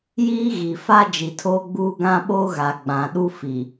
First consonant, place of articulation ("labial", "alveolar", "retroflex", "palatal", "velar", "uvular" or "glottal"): palatal